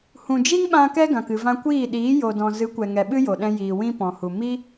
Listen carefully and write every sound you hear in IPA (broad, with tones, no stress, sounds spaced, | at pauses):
h ũ˨ d͡ʒ i˦ ŋ ɓ ã˧ k ɛ˦ ɡ ã˨ k ɨ˨ v ã˧ kʷ iː˦˨ ɗ iː˨˦ j o˨ d ɔ̃˨ z ɨ˨˦ kʷ ɛ˨ ŋ ɛ˨ ɓ ɨ˦ j o˨ ɗ ɛ̃˧ j iː˨ w ĩ˦ p ɔ̃˨ h u˨ m i˦